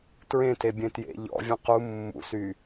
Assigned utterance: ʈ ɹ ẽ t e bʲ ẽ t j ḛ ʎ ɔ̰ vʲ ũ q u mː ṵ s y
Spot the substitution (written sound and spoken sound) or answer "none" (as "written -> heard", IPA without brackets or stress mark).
ʈ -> t